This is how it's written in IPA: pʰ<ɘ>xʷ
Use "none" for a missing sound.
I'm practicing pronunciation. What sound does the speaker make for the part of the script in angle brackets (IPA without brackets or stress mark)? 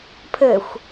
ɘ